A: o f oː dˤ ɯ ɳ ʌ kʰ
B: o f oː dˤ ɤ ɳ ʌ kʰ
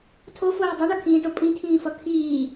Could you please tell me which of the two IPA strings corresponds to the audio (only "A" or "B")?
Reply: A